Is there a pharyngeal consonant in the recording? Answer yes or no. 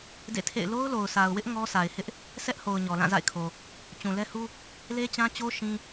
no